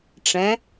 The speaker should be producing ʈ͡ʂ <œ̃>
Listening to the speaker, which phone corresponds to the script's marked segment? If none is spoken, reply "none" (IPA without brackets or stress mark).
ɛ̃